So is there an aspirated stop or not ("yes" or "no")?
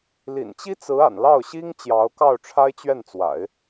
yes